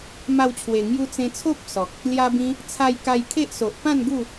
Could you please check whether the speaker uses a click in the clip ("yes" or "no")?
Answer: no